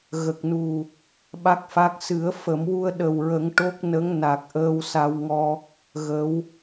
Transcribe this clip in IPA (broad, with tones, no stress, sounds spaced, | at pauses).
ɣ ə˨˩ k̚ n u˨˩ | ɓ a˦˥ k̚ f a˦˥ k̚ s ɨ˨˩˦ ə̯ f ə˨˩˦ m w u˧ ə̯ ɗ ə˨˩ w ɹ ə˨˩˦ ŋ ʈ o˦˥ k̚ n ə˧˥ ŋ n a˨˩ k̚ ʔ əː˧ w s a˧ w ŋ ɔ˧ | ɣ ə˧˥ w